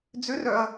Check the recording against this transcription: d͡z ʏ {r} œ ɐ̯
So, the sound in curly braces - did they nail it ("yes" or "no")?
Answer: yes